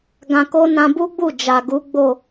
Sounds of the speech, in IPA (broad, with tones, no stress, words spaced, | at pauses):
ɡã˧ko˦ nã˧bu˦ɡ͡bu˦˨ d͡ʒa˨ ɡu˨˦ɡ͡bo˦˨